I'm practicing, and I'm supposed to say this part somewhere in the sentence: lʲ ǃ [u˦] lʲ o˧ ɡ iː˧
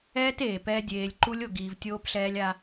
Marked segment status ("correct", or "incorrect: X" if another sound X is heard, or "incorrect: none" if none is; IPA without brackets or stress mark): correct